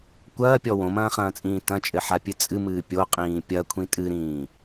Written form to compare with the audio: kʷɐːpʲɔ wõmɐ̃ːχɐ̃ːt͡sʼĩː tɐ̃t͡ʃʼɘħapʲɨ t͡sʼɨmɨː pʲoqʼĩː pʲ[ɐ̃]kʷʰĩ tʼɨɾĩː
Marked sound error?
yes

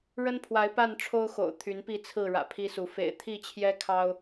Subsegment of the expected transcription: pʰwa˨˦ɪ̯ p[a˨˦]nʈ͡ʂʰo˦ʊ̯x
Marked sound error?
yes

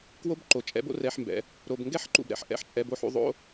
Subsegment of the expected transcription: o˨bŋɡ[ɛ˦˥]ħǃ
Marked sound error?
no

